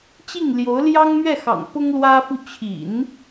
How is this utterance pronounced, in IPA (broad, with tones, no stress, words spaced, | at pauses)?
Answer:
t͡ɕi˥˩ŋljo˧˥ʊ̯ljɑ˥ŋ mɥɛ˥˩xɑ̰˨˩ŋ pʊ˥ŋlwä˥fu˥˩ t͡ɕʰḭ˨˩˦n